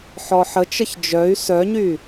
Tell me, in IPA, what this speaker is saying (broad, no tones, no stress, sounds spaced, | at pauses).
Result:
ħ ɔ ħ ə t͡ʃ ə ç d͡ʒ œ y̯ s œ ɲ y